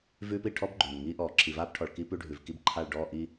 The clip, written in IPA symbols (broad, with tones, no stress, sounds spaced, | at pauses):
v ʉː˦ p i˨ ʈʰ ɔ˦ b ɡ͡ǃ ʉː˨ n ŋ iː˦ ʔ ɔː˨ ǁʰ i˨ v aː˦ p ʈʰ ɔ˨ ɭ k i˦ p ʉ˦ ɖʱ ʉ˨ v k i˦ b ǃʰ a˦˨ ɭ ɖ ɔː˦˨ ʔ i˦